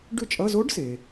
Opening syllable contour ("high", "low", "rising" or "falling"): falling